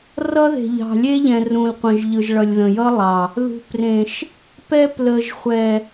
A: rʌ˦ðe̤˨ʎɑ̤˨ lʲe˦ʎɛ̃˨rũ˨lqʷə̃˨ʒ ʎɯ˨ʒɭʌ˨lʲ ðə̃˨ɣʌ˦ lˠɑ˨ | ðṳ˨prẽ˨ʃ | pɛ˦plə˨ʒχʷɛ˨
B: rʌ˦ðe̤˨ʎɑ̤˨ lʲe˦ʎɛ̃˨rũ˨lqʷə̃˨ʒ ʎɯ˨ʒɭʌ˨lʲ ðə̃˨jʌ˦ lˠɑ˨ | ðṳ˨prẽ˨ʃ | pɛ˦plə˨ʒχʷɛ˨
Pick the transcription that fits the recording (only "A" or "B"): B